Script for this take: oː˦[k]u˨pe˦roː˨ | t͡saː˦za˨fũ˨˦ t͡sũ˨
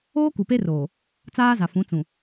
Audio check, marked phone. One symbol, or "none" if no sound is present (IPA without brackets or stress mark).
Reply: k